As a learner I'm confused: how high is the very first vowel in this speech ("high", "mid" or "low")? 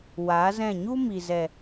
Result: low